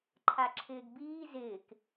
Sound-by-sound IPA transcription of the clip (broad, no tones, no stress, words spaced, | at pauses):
ǃʰaǁʰɪːɡbiː zɪːk